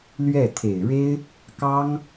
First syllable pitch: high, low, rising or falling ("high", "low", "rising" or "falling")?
falling